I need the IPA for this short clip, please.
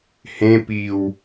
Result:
h ẽ p i w

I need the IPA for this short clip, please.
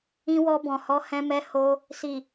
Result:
ĩ˧ w ɔ˧ b ɔ̃˨ h ɔ˨˦ h ɛ̃˧ m ɛ˧ h o˧ | s i˨

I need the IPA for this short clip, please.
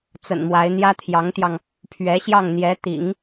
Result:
t͡s ə̰˨˩ n m w a˧˥ ɪ̯ n̪ j ä˥ t̪ʰ j ɑ˧˥ ŋ t̪ j ɑ˧ ŋ | pʰ ɥ ɛ˧˥ ɕ j ɑ˥˩ ŋ n̪ j ɛ˧˥ t̪ ḭ˨˩˦ ŋ

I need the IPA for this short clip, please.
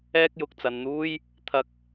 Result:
ɛː˥ k̚ j ʊ˨ k̚ t͡s ɐ˨ n n̪ uː˥ j | t̪ʰ ɐ˧ k̚

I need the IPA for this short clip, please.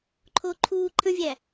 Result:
ǃʰ o ǃʰ u ǃʰ ə̃ vʲ æ

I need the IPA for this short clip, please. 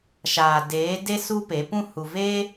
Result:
ʃ aː˨ d eː˨˦ d e˦ s u˦ p e˨˦ p ũ˦ h u˨ v eː˦

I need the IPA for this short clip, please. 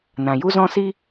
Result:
n ã˨ j u˦ z ɔ̃˦ s i˦

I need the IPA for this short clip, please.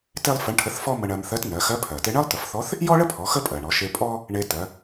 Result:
t e˥ lˠ f ə˧˥ ɳ ʈʰ ə˧˥ θ f ɔ˥ m ə˧ ɳ ɜ˧ m θ ɜ˧˥ t n ɜ˩˧ x ɜ˧˥ pʰ ɜ˩ t e˧ ɳ ɜ˥ lˠ t ə˩˧ f θ ɔ˧˥ θ | j ɔ˥ ɭ ə˥ pʰ ɔ˩˧ x ə˥ pʼ ɜ˩ ɳ ɔ˩˧ ʃ e˧ pʼ ɔ˥ | ɳ e˧ t ɜ˩˧

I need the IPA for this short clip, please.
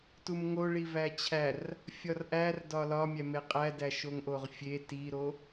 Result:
t u m ŋ o ɭ i v æ t͡ɕʰ æ r | fʲ ɒ r ʔ æ r d ɒ l ɒ mʲ æ m e qʼ æ d æ ʃ o ŋ ʔ o ʁ fʲ e t i ɾ o

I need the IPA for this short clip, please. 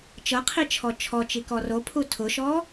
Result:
t͡ʃ ɤ qʰ i t͡ʃʰ ɔ t͡ʃʰ ɔ t͡ʃ i k ɔ r o pʰ u tʰ ʊ ʃ ɔ

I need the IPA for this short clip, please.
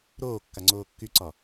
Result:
ɾ oː kː a ŋ͡ǀ oː kː y ǀ ɒ

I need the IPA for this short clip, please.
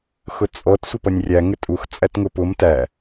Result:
x ʊ t͡sʼ ɔ t sʷ ə p ʌ nʲ rʲ æ ŋ ɪ tʼ u x t͡sʼ æ t ŋ ʊ p ʊ m t æ

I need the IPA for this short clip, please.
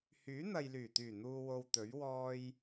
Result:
h yː˨˥ n̪ ɐ˨ j l yː˨˩ t̪ yː˨˩ n̪ uː˨ w o˨ w t̪ ɵ˨˥ ɥ w ɔː˧ j

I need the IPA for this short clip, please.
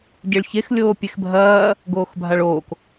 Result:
ɟ e ɭ ç e x lʲ oː pʲ e x bʱ ɐː | ɡ oː x bʱ a ɭ oː k

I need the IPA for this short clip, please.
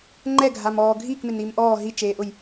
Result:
ŋ͡ǃ ɛ ɡʱ a m ɔː ɡʱ iː k m ɪ n i m ʔ ɔː ɦ i t͡ʃ eː ʔ ʊ j

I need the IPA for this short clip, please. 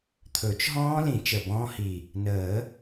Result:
t̪ʰ ɵ˨˩˦ t͡ʃ ɦ ɔ̃ː˦˥ l ĩ˨˩˦ t͡ʃ ə˨˩ b ɔ̃ː˦˥ h i˨˩ | n əː˨˩˦

